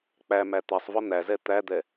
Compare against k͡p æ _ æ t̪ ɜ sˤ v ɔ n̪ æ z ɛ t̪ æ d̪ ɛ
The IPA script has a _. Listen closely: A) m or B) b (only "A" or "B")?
A